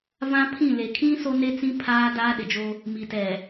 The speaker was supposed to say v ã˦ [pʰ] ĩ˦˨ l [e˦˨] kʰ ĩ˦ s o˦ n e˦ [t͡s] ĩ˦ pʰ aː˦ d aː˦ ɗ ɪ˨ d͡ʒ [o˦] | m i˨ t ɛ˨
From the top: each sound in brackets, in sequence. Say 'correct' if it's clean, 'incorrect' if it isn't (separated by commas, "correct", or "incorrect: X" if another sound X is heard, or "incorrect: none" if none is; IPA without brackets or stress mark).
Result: correct, incorrect: e˨, correct, correct